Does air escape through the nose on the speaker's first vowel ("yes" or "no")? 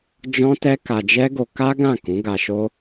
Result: yes